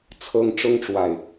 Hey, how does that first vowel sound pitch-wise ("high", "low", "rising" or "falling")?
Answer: high